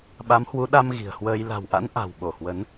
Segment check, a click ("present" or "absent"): absent